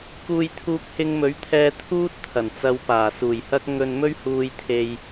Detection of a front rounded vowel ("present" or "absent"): absent